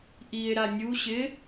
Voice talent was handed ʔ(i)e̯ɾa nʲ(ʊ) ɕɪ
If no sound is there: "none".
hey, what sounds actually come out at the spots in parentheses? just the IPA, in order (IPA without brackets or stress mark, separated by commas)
i, u